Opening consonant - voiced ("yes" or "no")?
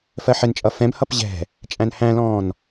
no